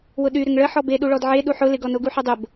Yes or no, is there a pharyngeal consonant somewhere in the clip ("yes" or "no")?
yes